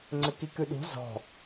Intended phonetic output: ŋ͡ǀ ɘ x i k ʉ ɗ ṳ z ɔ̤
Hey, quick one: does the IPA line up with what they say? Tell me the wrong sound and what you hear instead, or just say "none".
x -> k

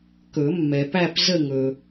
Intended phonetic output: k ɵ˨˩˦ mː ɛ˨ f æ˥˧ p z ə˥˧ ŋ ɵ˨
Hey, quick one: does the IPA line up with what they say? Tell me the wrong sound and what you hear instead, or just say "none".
f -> p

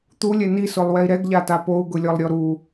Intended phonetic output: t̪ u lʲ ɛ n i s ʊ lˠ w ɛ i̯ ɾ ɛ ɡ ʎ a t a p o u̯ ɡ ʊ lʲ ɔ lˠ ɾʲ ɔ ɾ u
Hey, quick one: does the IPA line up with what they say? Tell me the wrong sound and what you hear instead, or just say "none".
none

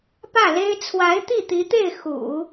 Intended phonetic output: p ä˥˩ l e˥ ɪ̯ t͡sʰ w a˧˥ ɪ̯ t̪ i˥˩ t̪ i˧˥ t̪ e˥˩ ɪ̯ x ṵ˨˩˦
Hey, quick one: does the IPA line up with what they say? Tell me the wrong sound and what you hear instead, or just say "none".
none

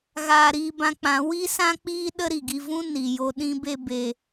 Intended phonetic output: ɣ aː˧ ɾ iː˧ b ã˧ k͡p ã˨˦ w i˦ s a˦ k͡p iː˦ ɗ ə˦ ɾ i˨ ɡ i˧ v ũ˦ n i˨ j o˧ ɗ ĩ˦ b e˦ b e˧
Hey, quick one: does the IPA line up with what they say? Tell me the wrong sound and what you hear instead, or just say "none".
a˦ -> ã˦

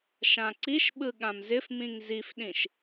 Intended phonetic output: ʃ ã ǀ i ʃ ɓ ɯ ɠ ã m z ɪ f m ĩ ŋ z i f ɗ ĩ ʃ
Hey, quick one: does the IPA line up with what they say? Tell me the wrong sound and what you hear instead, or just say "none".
none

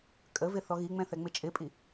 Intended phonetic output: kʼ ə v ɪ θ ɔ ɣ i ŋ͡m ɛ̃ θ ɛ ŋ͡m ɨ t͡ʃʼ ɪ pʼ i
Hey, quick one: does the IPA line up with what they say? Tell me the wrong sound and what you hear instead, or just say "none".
ɨ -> ɪ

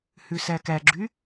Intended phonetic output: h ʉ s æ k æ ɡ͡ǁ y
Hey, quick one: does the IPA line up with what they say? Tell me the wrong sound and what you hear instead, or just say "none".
none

